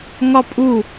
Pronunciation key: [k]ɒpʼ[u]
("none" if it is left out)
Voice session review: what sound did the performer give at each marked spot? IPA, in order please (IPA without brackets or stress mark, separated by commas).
ŋ, u